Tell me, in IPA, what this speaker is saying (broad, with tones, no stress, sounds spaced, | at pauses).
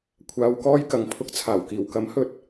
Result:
kʷʰ aː˨ w k ɔː˧ j k ɐ˨˧ ŋ pʰ ʊ˧ k̚ t͡sʰ aː˨˩ w k iː˨˩ w k ɐ˨˥ m h ɵ˨ t̚